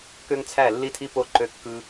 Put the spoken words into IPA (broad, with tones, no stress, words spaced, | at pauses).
kø˧ŋt͡sʰæ˧˩ lːi˧tʰi˧po˧˩ ǃø˧kːɯ˧